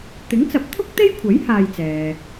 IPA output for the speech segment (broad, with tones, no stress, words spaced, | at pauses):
t̪ɪ˨˥ŋt͡sɐ˨˥p̚t̪ʰʊ˥k̚ t̪e˥jkʷʰɐ˨˥j haː˧jt͡sɛː˨